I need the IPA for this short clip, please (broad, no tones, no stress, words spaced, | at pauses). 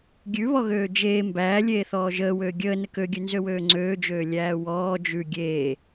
ɡʲʉβɔɣøː d͡ʒeː mbæːlʲeːθɔː ʒəːwøː ɡʲəː nəkøɡʲʉ nzøwøːŋ͡ǀøːd͡ʒøː lʲæːwɔː d͡ʒʉ ɡʲeː